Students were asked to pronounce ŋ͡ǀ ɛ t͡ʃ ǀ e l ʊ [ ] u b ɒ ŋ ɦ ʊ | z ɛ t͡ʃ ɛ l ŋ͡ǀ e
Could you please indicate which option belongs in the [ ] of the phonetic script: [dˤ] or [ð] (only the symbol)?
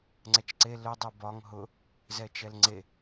dˤ